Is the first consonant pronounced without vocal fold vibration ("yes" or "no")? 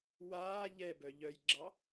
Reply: no